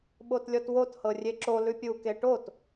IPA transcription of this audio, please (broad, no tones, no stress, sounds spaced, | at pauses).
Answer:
ɓ o t lʲ ɔ t w o t h ɤ rʲ e ǁ o l ʉ pʲ u k e ʈ o t